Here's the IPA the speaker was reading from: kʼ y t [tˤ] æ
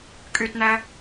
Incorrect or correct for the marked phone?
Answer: incorrect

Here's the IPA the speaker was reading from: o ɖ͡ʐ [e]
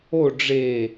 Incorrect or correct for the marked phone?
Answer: correct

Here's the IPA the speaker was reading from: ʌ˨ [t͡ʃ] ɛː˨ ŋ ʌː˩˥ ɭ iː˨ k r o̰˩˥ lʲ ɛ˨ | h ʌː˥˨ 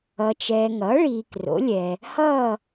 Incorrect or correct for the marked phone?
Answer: correct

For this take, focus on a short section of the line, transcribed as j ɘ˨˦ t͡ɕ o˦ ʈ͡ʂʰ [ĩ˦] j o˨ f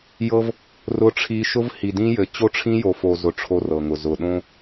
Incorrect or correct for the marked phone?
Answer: correct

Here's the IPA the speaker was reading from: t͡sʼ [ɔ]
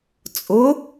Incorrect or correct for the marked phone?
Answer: incorrect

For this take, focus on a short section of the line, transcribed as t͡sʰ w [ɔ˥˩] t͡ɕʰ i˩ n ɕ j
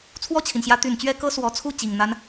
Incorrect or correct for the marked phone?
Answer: correct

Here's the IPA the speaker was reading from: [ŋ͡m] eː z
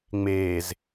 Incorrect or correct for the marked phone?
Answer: correct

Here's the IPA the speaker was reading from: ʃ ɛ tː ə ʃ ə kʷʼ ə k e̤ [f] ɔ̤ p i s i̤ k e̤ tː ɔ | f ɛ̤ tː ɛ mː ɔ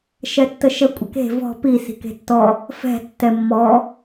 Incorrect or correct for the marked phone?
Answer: incorrect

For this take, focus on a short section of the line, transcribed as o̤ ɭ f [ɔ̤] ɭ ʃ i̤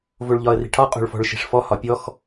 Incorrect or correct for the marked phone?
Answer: correct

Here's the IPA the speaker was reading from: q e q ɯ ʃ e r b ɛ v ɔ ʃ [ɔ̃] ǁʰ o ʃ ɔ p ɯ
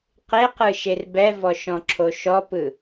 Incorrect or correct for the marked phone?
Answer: correct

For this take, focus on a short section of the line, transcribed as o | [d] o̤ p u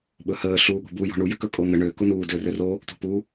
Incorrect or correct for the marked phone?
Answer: incorrect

